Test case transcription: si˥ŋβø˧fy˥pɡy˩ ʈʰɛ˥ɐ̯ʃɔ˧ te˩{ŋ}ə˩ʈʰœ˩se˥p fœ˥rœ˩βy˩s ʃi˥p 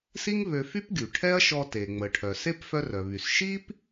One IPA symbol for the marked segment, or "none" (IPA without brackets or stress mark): ŋ͡m